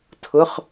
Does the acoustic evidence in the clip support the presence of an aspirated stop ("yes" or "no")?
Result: yes